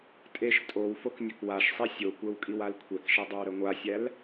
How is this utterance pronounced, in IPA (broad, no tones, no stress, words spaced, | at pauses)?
tʼeʃ tʼow foknʲəkwaʃsˤi sʲokʷɛw kʼiwalkʷʰɛkʃɛ dˤowɾəŋʷasʲæl